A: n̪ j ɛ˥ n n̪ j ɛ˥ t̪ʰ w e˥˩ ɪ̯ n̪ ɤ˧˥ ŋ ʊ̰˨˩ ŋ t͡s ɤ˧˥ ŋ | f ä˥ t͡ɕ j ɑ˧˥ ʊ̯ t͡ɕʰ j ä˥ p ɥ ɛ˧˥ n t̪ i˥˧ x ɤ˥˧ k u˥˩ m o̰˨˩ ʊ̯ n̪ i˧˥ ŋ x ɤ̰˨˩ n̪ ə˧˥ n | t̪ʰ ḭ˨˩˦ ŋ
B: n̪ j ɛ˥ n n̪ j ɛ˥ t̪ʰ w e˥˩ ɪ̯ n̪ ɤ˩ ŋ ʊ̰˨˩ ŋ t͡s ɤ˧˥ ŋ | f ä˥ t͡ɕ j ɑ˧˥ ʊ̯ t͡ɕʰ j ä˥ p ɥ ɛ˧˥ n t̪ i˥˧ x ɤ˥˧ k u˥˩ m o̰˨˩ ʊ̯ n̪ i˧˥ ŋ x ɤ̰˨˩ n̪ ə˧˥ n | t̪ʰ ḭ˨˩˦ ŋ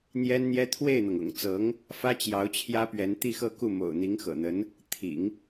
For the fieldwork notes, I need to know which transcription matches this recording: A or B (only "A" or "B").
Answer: B